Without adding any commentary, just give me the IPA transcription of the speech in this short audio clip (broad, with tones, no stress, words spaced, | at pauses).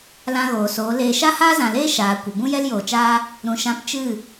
lã˧ɣoː˨soː˨˦ leː˧ ʃa˦haː˦zã˨leː˦ ʃaː˨ kʷə˨bũ˦ jɛ˦ljoː˨t͡ʃaː˦ | ɾũ˨ʃã˨˦p t͡ʃɨ˦˨